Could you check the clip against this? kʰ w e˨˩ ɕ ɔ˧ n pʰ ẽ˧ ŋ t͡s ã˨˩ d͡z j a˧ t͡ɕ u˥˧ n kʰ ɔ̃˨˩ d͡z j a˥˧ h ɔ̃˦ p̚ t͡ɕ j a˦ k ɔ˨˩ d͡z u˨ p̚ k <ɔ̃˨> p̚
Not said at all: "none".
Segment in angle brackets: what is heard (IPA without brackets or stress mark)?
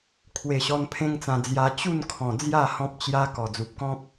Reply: ɔ̃˦